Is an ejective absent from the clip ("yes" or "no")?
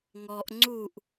yes